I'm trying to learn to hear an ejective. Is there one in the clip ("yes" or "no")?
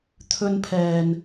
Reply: no